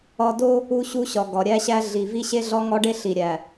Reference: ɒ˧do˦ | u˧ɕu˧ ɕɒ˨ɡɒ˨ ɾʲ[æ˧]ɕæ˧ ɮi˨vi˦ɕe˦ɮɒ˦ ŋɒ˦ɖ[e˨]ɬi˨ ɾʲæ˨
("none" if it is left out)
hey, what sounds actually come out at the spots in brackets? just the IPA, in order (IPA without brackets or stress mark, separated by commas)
æ˧, e˦